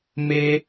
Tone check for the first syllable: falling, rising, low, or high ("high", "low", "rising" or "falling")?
high